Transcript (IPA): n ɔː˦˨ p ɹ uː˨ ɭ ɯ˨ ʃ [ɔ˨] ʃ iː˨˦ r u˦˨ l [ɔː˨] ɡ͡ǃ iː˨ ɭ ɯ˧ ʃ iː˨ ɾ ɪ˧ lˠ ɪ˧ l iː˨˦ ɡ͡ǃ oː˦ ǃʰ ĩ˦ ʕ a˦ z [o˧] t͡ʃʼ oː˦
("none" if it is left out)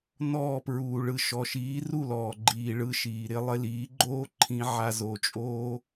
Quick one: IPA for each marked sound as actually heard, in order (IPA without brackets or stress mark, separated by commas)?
ɔ˨, ɔː˨, o˧